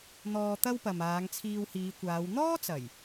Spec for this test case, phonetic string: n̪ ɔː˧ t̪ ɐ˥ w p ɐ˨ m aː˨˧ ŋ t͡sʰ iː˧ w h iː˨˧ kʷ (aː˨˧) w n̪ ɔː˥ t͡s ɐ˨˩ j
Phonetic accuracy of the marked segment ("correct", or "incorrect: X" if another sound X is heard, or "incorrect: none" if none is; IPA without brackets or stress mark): correct